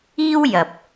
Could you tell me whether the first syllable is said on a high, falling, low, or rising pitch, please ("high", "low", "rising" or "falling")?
high